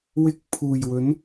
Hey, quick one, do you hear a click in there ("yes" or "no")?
no